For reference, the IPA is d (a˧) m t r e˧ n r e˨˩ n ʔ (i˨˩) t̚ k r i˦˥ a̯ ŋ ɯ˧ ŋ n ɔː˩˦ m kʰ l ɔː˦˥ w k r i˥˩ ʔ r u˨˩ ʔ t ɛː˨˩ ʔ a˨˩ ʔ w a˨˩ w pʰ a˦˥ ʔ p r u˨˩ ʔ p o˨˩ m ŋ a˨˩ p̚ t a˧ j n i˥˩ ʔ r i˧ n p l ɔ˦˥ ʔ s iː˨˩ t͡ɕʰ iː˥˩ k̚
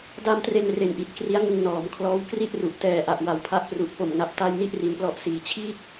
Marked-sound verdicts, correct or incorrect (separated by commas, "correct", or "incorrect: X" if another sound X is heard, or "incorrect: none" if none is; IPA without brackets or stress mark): correct, correct